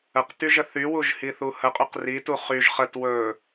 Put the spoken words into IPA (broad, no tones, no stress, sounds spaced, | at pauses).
ə q t y ʒ ə θ y w u ʒ h i θ u h ə qʼ y q r i t u χ y ʒ χ ə t w ɵ